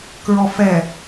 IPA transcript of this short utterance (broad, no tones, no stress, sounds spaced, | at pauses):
k ɹ ɔ f ɛ